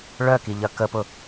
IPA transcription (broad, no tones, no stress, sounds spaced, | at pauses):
ɭ œ k i ʎ ɐ k ə p ʊ